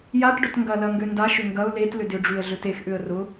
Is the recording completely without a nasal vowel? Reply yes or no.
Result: yes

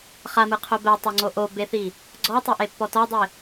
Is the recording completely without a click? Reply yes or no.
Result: no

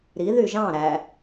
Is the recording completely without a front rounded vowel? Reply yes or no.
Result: no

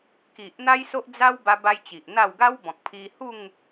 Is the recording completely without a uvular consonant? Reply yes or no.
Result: yes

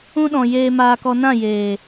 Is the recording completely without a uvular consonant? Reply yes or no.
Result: yes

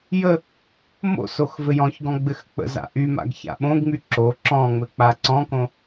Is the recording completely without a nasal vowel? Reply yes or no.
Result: no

